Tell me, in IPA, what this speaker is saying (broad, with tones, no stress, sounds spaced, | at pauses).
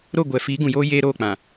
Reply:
ɾ o˦˨ ɡʷ ɛ˨ f iː˨˦ ɡ ũ˨ j oː˦ j eː˦ ɾ oː˦˨ k͡p ã˨